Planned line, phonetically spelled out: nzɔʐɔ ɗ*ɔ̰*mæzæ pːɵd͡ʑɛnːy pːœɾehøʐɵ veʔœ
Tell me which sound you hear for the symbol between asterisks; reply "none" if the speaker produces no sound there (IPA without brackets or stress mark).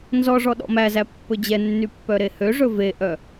ɔ̰